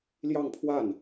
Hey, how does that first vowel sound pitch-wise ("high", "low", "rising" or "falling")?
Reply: falling